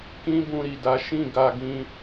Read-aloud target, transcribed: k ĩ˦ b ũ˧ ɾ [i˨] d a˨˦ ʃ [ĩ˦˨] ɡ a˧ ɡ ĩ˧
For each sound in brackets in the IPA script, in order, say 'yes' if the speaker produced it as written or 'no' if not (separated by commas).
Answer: yes, yes